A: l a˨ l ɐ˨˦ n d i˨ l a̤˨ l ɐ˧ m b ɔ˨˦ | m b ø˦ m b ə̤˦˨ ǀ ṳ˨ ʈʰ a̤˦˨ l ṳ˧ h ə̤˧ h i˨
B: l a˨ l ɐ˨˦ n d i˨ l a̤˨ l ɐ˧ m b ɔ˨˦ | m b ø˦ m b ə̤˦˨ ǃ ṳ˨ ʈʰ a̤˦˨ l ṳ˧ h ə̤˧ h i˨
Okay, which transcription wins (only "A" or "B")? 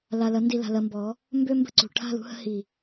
A